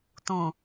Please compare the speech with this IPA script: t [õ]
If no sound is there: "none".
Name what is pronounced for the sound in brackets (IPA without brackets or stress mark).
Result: ũ